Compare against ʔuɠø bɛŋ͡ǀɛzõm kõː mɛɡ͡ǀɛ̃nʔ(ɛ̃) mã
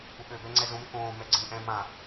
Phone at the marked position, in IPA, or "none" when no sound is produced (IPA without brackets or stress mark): ɛ̃